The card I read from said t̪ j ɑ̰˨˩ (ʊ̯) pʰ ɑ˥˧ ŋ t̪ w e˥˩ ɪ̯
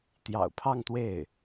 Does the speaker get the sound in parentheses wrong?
no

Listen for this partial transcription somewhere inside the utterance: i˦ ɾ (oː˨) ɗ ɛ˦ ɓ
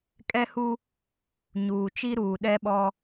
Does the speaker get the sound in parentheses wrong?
yes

